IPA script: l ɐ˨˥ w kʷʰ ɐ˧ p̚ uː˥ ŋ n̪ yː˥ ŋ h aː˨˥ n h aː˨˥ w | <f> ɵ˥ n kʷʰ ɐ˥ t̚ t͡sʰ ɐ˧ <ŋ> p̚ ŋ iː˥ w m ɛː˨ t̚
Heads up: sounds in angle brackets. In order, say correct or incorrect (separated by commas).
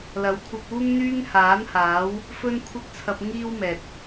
correct, incorrect